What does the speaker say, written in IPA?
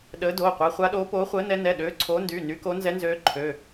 ɗəː˨˦ doː˩˧˩qʷɛ˨˦ χʷa˨˦ɗoː˨˦ poː˨˦χʷəː˨˦nɛ˨˦ nɛ˩˧˩ɗøː˨˦ ǀʰoː˨˦ndyː˩˧˩ ny˨˦ko˨˦ nzɛ˨˦nzøː˨˦ǃʰø˩˧˩

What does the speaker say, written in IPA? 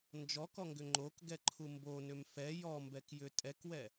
nd͡ʒɔkɔŋɡʏ ŋ͡ǃokɡɛǃʰu mbonʏm fɛ jɔmbɛkjʏ tʼɛkwɛ

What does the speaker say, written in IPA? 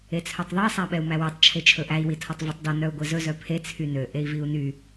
et͡sʰœtˤðˤe sˤæɓɛu̯mæwetˤ t͡ʃʰet͡ʃʰɵʔæi̯ witʰɔtˤvetˤdɔ nœu̯ɡʷezɵ zœpʰe t͡sʰynø ʔei̯viu̯ny

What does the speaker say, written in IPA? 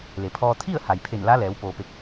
le˩pʰɔː˧ t̪ʰi˥˨ə̯ ha˩jpʰe˧˩n la˧˥lɛː˩˧w poː˩pe˧˩k̚

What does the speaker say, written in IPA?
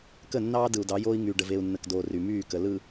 kə˦˨nːɑː˦ dɯ˨u̯dɑ˨˦joː˦i̯ ŋyː˨ ɖə˨ve˨u̯nːə˨kdoː˨ ry˨myː˦˨kə˨ lɯ˨

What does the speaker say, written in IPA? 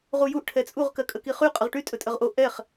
ʁujuʔ ʈʰɛt͡sʼuʁ kɜkʼəkiχy qʼəʁʈy tʼɵtʼəʁʔo ʔɛχ

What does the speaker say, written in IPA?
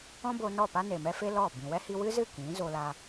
ɔ̃˦ bo˧nɔ˦˨pa˦ ne˨mɛ˦fe˦ lɔ˦˨ bĩ˨wɛ˦hi˧ wɨ˦zɨ˦˨ kĩ˨˦ zo˧la˧

